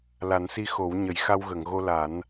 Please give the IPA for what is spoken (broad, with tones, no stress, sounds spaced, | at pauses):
l a˨˩˦ n s i˧ x o˨˩˦ w ɲ ə˨˩˨ j x a˧ w ɣ ə˨˩˨ ŋ ɣ o˧ l a˨˩˦ n